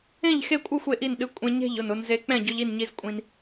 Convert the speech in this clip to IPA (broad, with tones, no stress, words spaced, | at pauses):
ẽ˥˩ʎxe˥˩kʷʼɨ˥˩xʷ e˧ʔi˥˩n ɗɨ˧kʷʼẽ˧ɲe̤˥˩ʎ ʊ˥˩nʊ˧nze˧ k͡pɛ̃˥˩ɟʊ˧ʎi˥˩nɲi˧z kʷʼĩ˧n